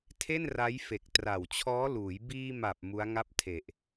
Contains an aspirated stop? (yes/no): yes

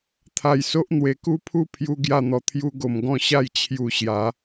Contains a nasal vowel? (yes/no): yes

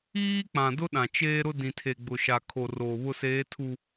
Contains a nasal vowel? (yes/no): yes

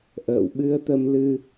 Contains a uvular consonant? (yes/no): no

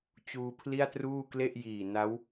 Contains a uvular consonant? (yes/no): no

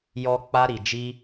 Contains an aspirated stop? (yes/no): no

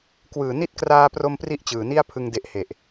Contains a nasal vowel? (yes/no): no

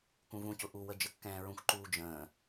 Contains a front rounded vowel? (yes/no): no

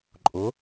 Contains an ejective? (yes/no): yes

